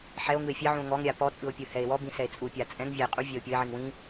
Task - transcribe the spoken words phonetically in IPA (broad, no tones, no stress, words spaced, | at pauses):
ħɛo̯ ŋɯe̯fʲɛʕũo̯ ŋɔŋɾʲa pɔ t͡sʼɯo̯pʲɯhɛe̯ wɔbĩ sɛe̯t͡sʼupʲa t͡sʼɛ̃ŋvʲae̯ qʼu vʲɛo̯pʲɤe̯ʕiŋ wĩ